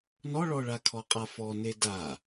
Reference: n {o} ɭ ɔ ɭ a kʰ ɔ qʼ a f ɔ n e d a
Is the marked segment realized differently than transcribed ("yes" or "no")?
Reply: yes